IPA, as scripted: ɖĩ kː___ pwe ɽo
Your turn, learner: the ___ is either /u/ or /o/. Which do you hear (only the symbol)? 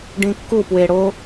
u